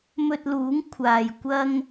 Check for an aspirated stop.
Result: present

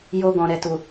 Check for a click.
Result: absent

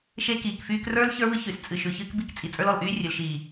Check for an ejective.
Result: present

